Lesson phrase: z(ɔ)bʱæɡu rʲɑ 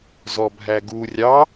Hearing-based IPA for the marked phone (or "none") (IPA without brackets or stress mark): ɔ